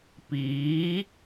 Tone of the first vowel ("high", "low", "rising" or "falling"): rising